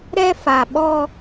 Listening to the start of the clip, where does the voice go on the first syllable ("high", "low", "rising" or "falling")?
high